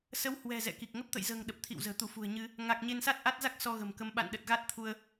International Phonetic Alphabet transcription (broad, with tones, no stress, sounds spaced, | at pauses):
s ə˨˦ w h w ɛ̤˨˩ z ɛ̰˧˨ k i˨˩ k̚ ŋ ə˦˥ p̚ t̪ ə̰˧˨ j z ə̤ː˨˩ ŋ ɗ ə˨˩ p̚ t̪ʰ ḭ˧˨ w z ə̤ː˨˩ t̪ u˧˩ f ṳ˨˩ ə̯ ɲ ɨ˧ | ŋ a˨˩ k̚ ɲ e˧ n s a˦˥ t̚ ʔ a˦˥ t̚ z a˦˥ k̚ s ɔ˧ ɣ ə̤˨˩ m k ə˨˦ m ɓ a̰˧˨ n ɗ ə˨˩ t̚ ɣ a˦˥ t̚ t̪ʰ u˧ ə̯